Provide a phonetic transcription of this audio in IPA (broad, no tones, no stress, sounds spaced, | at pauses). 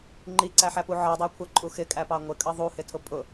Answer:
ŋ͡ǃ i ǀ æ ħ æ p u ʕ ɜ dˤ æ kʷʰ ɜ ǃʼ u x ɪ kʼ æ p ɑ ŋʷ ɪ kʼ ʌ ðˤ u h ɪ tʰ ʊ pʼ ʊ